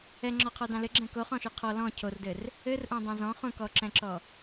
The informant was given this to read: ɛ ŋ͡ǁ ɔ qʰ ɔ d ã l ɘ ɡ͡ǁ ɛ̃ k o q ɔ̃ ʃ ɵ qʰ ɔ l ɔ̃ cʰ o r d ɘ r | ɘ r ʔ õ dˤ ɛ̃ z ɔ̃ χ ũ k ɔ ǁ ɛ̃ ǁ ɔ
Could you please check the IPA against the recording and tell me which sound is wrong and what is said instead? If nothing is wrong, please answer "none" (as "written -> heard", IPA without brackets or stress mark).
q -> χ